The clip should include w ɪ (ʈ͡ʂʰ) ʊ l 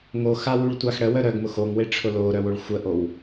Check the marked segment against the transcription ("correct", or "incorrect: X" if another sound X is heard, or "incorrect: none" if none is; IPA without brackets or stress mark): correct